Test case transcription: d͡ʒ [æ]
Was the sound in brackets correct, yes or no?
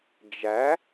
yes